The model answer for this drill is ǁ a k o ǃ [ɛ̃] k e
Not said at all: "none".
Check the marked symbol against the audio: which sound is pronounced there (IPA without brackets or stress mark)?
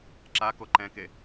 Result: ɛ̃